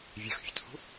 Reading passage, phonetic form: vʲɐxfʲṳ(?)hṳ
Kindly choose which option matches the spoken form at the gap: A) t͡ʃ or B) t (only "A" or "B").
B